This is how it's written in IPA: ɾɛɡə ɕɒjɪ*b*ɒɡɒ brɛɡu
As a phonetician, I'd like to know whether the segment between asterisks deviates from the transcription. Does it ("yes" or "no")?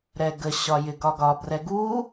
yes